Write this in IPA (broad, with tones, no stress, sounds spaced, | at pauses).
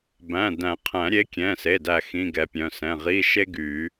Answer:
b æ̃˩˧˩ d æ̃˨˩˦ qʰ æ̃˨˩˦ ɾʲ e˨˥ kʲ ɛ̃˩˧˩ s e˩˧˩ d æ˥˩ x ĩ˧˥˧ ɡ ɛ˨˥ pʲ œ̃˩˧˩ s ɛ̃˩˧˩ ʁ i˧˥˧ ʃ e˥ ɡ y˨˩˦